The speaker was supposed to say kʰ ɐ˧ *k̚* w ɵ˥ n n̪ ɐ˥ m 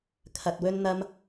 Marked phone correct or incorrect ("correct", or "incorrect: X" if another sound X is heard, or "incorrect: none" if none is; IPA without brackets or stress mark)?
incorrect: t̚